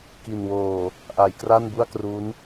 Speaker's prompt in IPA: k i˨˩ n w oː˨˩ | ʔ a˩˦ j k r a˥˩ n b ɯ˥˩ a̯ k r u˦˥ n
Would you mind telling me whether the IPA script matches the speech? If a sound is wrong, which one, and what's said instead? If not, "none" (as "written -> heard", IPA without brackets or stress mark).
ɯ˥˩ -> u˥˩